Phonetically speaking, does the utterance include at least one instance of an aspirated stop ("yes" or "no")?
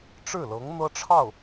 yes